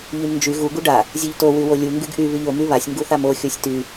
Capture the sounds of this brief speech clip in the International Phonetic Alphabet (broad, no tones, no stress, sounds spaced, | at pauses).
ʎ y m n d͡ʒ y ɣ u ɡ u ɖ a | zʲ u ʎ t o w y w o lʲ u ŋ ɡ y ɡ ʔ y β y ʎ o m y β a sʲ ŋ ɡ u θ a m o xʲ o sʲ t y